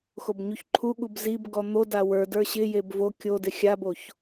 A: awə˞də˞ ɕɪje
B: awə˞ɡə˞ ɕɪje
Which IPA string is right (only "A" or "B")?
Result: A